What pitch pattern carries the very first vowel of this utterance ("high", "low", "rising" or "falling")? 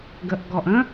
low